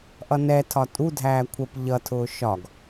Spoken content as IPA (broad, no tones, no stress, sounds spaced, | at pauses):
ʔ ʌ n ɛ tʰ ɒ tʼ u dʱ æː kʷʰ ə p ʎ ʌ tʰ ʊː ʃ ɒ ɡ